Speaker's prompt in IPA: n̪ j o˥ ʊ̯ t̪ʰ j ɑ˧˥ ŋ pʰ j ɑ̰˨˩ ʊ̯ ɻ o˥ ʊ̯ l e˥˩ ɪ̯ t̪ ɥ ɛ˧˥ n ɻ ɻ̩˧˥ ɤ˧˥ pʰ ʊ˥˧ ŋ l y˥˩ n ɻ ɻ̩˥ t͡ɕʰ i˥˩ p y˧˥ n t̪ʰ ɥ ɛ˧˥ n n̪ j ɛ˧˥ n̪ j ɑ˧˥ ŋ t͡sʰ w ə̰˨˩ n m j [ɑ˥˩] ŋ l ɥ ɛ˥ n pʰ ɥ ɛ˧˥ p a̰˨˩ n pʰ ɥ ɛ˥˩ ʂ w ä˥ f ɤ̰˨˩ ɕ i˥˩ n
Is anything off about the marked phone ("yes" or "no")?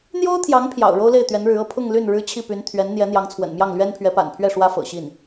no